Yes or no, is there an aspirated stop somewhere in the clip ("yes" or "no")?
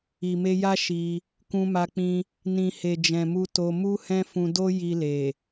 no